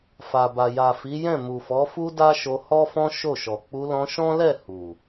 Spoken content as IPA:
f a˨ b a˨ j a˨ f i˨˦ j ɛ̃˦˨ m u˨ f ɔ˨˦ f u˦ d a˦ ʃ o˧ h ɔ˦ f ɔ̃˦ ʃ o˦˨ ʃ ɔ˨ k͡p u˧ l ɔ̃˧ ʃ ɔ̃˦ l ɛ˦˨ h u˨

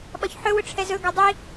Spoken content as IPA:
ɓ ɒ ç ħ ɵ w ʊ ʈ͡ʂʰ ɛ z ɵ ɡ ɒ dˤ i

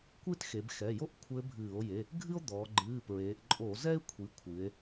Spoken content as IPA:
kʷ ɨ˥ t x e˩˧ b x ɛ˩˧˩ j o˥ ʔ kʷʰ ɘ˧˥ bʱ ɨː˧˩˧ o̯ j e˩˧˩ | ɡʱ ɨ˥ o̯ d̪ ɔː˩˧ ɡ͡ǃ ɨː˩˧˩ p ɹ eː˩˧ ʔ ǃʼ o˧˩˧ z ɛ˥ e̯ kʷʰ i˩˧ kʷʰ ɨ˩˧ e̯

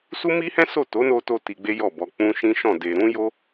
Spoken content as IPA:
s u˦ m i˦ h ɛ̃˦ s o˦˨ t o˨˦ n o˧ t o˧ t i˧ ɡ͡b e˦ j ɔ˦˨ b ɔ˧ k͡p ũ˦ ʃ ĩ˦ ʃ ɔ̃˦˨ d e˧ ɾ ũ˦ j o˦

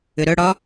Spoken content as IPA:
ʏ ɾ œ ɽ ɒ

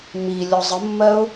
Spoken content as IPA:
m i lʲ ɔ zˤ ə mː ɜ ʊ̯

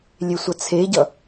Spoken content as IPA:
lʲ e sʷ ɐ t͡sʰ e ɟ ʌ

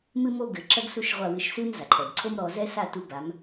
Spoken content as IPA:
m ɨ˦ m o˦ ɡ ɘ˨ ǁ ɐ˦ ɡ s u˦˨ ʃ ʁʷ a˦˨ w ɨ˦ ʃ s ɨ˦ m z a˨ ǃʰ ɛ˨ b ǀʰ o˦ m ɾ ɔ˧ z ɛ˦ s a˦˨ t u˧ b a˨˦ m

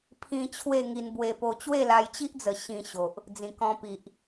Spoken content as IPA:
pʰ ĩ˧ t͡ɕʰ w e˥˧ ŋ i˧ n b w e˧ p o˧ t͡ɕ w e˥˧ l a˧ j t͡ɕ i˦ ʔ d͡z ə˨˩ ɕ ĩ˧ ɕ o˨ ʔ | d͡z ĩ˨˩ k ɔ̃˧ p i˨ ʔ

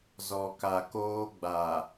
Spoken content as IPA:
z ɔ˨ k a˨ k oː˦ ɡ͡b a˨

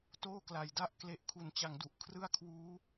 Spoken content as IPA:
t oː˥˩ k l a˨˩ j d a˦˥ ʔ k l e˦˥ ʔ kʰ u˨˩ n t͡ɕ a˨˩ ŋ d u˨˩ ʔ kʰ r ɯ˥˩ a̯ kʰ w uː˦˥

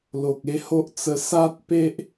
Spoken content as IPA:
l o˨ k̚ e˥˧ h o˦ ʔ t͡s ə˧ s a˦ t̚ p e˦ ʔ

